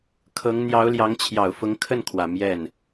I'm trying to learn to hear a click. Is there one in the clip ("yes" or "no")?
no